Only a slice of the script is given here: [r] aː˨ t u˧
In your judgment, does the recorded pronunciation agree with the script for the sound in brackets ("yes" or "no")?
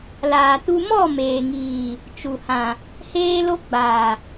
no